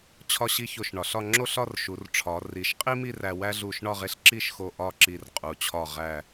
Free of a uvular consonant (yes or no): no